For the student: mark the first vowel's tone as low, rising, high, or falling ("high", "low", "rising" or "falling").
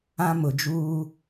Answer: high